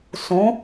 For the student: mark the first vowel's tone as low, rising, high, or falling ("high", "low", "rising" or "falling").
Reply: rising